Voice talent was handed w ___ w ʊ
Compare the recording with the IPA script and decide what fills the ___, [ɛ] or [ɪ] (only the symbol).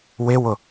ɪ